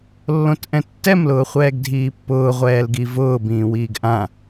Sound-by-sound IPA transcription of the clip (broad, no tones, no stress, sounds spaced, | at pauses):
lː õ t ʔ ɛ̃ tː ɛ m l ʊː χʷ ɛː ɡ dʱ iː pː ʊː ʁʷ ɛː l ɡ i v ʊː b ĩː w iː ɡ ʔ ã